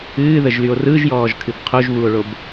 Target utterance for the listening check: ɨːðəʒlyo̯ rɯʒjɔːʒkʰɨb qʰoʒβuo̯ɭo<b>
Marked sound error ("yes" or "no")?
no